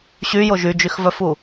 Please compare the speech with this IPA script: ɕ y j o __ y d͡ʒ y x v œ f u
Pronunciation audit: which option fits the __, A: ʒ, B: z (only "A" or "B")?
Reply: A